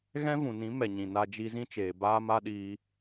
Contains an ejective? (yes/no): no